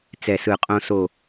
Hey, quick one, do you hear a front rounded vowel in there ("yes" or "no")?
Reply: no